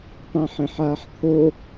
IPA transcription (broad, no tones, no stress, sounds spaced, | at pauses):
tˤ ẽ ħ ẽ ħ aː ħ t̪ʰ o